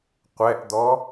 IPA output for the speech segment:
qʷɛʔd̪ɔ

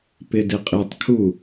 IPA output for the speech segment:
pɪdɪqʼitˤkʰu

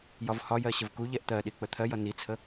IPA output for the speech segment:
jɒvhɒjɜ ɕəvkuʎɛʔ t̪ɜɗi k͡pət̪ʰɜjʌ nit͡sʰə

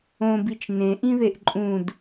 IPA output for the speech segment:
õbit͡ʃ nẽʔĩðeʔ ǃʼũd

